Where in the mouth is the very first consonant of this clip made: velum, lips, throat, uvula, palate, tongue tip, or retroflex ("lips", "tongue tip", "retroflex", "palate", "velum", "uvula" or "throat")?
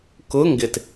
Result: velum